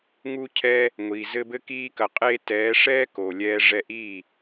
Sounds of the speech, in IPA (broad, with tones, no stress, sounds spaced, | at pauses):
ŋ u˦ cʰ ɛː˦ | ŋʷ iː˨ z ɘ˧ b ɘ˧ k iː˧ k ɐ˨ qʼ eː˧ t ɛː˨˦ ʂ ɛː˦ k o˨ lʲ ɛː˧ ʐ ɛ˧ ʔ iː˦˨